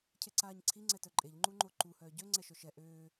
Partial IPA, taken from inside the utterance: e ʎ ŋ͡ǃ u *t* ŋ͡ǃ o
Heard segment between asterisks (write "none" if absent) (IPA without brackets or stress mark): none